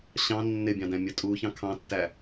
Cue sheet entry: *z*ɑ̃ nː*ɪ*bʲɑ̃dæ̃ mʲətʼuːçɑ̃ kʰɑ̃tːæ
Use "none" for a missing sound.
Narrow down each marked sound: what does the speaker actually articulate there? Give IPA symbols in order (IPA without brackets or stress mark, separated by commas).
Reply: ɕ, ɪ